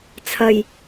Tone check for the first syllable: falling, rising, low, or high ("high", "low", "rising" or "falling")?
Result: low